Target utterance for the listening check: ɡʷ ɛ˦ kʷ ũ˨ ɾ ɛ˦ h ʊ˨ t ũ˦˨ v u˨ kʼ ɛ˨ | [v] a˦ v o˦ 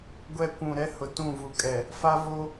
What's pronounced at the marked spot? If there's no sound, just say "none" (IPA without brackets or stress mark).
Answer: f